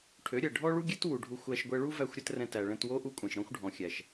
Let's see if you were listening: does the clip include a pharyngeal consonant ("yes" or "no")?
no